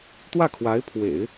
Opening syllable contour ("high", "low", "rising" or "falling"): falling